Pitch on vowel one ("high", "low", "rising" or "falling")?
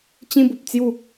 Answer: high